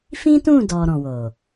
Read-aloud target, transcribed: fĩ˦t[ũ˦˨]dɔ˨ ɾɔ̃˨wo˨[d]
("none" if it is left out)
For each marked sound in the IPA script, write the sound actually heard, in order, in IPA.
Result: ũ˦˨, none

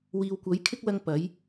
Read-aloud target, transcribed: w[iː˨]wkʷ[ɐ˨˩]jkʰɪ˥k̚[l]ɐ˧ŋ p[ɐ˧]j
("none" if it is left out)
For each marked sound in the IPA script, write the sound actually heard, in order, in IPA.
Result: iː˨, ɐ˨˥, l, ɐ˨˥

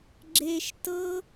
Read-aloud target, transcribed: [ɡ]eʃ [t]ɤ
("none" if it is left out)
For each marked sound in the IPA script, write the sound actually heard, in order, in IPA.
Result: ɡ͡ǁ, t

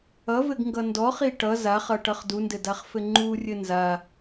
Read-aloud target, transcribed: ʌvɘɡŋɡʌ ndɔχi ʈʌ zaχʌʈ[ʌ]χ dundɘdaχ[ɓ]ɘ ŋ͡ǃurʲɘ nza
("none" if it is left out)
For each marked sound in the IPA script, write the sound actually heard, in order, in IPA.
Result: ʌ, f

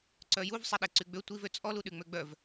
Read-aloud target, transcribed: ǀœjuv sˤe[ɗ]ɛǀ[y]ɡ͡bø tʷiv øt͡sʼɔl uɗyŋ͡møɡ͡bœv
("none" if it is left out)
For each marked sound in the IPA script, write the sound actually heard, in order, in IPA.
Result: ɗ, y

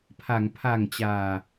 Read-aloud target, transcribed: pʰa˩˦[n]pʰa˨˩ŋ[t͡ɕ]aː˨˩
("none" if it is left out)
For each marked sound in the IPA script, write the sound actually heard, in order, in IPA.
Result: ŋ, t͡ɕ

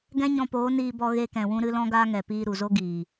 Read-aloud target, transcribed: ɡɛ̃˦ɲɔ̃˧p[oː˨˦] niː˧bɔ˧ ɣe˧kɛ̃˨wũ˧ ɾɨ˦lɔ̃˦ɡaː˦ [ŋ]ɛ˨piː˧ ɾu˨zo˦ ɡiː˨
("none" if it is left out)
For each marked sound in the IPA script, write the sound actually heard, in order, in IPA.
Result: oː˨˦, ŋ

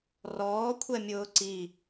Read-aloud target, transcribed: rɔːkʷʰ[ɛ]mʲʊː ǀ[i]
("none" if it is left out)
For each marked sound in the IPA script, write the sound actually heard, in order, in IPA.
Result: ɛ, i

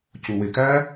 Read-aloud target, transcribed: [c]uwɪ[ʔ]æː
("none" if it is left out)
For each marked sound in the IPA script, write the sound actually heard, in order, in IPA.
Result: c, k

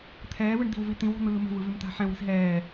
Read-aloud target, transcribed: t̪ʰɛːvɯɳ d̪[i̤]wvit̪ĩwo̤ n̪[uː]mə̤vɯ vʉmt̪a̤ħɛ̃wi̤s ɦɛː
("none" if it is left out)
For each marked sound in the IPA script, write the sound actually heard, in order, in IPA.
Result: i̤, ɯː

